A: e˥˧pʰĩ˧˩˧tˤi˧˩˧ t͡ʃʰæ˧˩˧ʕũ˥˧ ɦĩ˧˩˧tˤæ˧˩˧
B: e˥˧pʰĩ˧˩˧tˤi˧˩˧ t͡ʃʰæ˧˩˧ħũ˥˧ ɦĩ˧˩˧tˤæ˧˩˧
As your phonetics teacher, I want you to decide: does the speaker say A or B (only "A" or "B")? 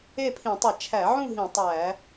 A